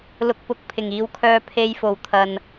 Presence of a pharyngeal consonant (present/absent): absent